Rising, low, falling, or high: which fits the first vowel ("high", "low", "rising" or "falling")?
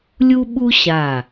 high